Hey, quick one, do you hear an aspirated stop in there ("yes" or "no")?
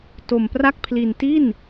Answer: yes